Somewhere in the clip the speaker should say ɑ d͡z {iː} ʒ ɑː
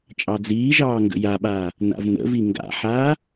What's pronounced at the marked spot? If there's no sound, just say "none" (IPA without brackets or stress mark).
iː